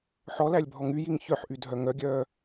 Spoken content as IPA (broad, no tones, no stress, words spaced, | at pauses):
ħɔlælʲ bʱɔŋyjiŋ çœħʔy dʱœŋœɡʲœː